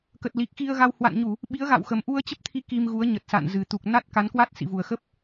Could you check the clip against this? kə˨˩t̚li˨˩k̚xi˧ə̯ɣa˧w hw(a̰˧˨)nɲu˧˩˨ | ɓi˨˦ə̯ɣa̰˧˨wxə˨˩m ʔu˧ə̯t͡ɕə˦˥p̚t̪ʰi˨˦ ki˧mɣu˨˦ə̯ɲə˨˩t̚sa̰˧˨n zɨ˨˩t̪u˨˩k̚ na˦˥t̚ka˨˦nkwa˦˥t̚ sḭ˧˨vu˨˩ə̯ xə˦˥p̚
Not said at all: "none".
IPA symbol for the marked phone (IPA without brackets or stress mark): a̰˧˨